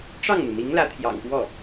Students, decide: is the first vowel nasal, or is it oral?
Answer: oral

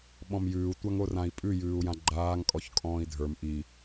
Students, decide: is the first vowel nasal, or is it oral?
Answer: nasal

